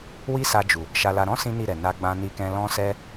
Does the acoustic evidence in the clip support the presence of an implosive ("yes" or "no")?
no